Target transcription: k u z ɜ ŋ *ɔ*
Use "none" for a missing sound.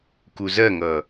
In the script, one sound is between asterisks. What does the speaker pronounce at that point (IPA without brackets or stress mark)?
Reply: ʌ